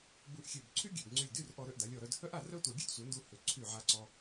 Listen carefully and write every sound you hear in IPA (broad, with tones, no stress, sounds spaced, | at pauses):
b u˧ ʔ xʲ ø˧˩ b ǀʰ y˥ ɡʲ ø˧˩ b ŋ͡ǀ y˧˩ lʲ d y˥˧ r ʔ ɔ˧ ɾ ø˧ ʔ d a˩˧ lʲ ɔ˧˩ ɾ œ˧ d h œ˥ ʔ a˥˧ r œ˥ tʷ a˧ ɡʲ ø˥ d sʷ œ˩˧ n d u˧ h ø˧˩ ǀʰ y˧˩ ʕ a˧ ǀ ɔ˧